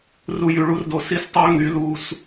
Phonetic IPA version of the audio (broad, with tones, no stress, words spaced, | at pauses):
ru˧jy˨ɭu˦rdo˧ si˦s tˤo˦ ŋy˨˦lu˧s